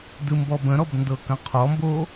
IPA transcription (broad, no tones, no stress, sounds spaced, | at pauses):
d ɯ m b ɔ b ə̃ ɾ ɔ b n d ɤ k ə̃ qʰ ɔ m b o